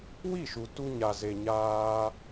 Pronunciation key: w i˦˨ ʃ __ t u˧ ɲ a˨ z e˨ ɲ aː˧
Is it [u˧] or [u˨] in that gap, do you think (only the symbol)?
u˨